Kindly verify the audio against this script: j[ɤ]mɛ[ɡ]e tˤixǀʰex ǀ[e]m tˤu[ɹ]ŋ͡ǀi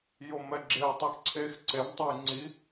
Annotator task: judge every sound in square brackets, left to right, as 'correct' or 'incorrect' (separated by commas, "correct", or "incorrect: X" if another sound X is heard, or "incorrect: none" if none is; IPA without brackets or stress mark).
incorrect: o, incorrect: ɡ͡ǁ, correct, incorrect: j